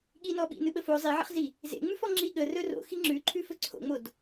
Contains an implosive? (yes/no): yes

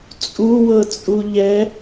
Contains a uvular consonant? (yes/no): no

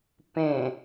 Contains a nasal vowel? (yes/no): yes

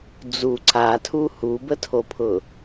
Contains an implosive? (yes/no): no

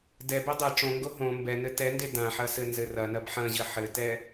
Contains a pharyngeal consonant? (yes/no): yes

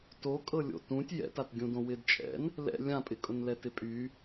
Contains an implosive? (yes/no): no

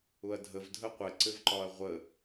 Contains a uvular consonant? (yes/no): yes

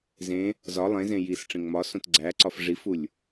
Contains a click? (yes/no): yes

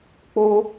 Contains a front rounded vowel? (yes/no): no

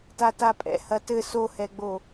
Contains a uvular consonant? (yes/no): no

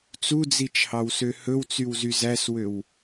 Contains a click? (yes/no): no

